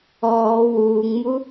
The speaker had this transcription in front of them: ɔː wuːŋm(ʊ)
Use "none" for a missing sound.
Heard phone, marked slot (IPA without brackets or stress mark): u